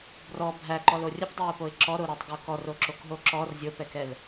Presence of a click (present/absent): present